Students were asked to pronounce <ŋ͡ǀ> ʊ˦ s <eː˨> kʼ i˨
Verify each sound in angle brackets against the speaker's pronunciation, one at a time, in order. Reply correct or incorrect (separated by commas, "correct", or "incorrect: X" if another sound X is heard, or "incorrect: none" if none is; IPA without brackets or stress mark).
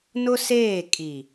incorrect: n, incorrect: eː˦˨